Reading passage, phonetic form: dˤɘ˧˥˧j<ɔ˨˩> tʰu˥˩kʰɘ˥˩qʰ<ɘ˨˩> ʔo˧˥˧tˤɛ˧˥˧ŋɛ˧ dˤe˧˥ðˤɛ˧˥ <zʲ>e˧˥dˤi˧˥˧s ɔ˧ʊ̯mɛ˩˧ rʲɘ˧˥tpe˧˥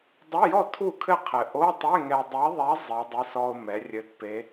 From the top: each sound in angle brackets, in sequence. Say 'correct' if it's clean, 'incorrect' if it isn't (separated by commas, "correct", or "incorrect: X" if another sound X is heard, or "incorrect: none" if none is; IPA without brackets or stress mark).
incorrect: ɔ˥˩, correct, incorrect: zˤ